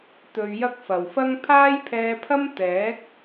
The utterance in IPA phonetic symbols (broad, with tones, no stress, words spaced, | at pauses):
t̪ɵ˧ɥjɐ˥k̚ fɐ˨wfɐ˥ŋ pʰaː˥jpʰɛː˧pʰɐ˥m t̪ɛː˨˥k̚